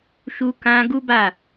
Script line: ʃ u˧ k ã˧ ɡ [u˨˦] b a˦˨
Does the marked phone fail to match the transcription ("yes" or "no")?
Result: yes